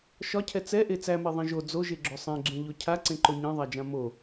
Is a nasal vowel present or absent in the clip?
present